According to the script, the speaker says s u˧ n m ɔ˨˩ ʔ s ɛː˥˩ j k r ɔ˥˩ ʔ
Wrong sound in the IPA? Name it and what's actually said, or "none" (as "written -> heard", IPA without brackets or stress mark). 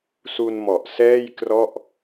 none